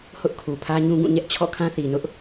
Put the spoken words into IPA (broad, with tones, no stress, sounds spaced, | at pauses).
h ʊ˦ ʔ kʰ u˨ pʰ ä˦ ɲ ũ˦ ɡ ũ˦˨ ɲ ɛ˦ ʔ t͡ɕʰ ɔ̰˦˨ kʰ ã˦ θ i˨ n ʊ˦ ʔ